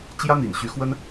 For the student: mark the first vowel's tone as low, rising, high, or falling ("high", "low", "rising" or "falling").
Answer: high